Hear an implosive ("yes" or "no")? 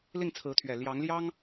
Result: no